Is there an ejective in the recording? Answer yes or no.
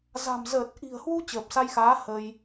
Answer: no